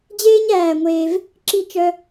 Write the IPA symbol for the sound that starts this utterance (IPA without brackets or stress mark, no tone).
d͡ʑ